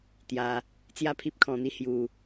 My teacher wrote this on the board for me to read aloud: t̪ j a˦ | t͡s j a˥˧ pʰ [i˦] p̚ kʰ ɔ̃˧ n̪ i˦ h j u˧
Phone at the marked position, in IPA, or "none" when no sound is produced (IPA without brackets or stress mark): i˦